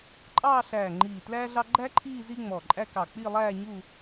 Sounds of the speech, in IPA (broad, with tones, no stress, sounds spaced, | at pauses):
ǃʼ ɑː˥˧ ɬ æː˧˩ ŋ͡ǃ iː˧˩ t l æː˥ ɮ ɑ˥ ɡ͡ǃ æ˥ ǃʰ iː˥˧ z i˥ ŋ͡m ɔ˧˩ ǃʼ æ˥ k ɑ˧˩ k͡p i˥˧ lˠ æː˥˧ ɲ u˥˧